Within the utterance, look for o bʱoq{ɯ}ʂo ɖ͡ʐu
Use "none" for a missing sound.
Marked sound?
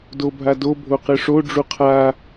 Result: ɯ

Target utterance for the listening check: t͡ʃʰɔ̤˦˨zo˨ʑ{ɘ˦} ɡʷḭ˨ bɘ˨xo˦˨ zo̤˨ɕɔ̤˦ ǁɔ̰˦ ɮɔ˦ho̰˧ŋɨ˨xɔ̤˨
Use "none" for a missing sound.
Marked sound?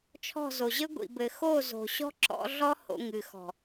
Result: ɘ˦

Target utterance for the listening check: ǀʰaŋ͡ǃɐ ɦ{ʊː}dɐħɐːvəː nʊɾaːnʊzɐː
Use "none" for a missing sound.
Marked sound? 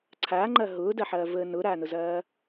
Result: ʊː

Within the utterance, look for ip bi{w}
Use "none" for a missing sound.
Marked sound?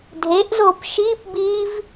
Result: v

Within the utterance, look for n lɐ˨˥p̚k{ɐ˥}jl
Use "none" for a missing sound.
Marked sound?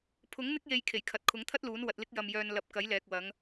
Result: ɐ˨˥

